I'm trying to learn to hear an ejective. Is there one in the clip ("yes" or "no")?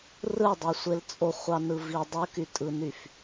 yes